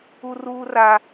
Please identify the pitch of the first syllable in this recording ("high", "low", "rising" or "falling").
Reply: high